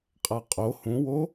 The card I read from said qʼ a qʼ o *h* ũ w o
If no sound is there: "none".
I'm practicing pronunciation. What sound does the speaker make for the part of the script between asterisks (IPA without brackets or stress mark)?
h